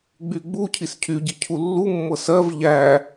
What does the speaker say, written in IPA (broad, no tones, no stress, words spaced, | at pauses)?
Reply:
ɡ͡byɡ͡bucʰis cʰyɟi cʰulːumːɤ sɜv ʎæ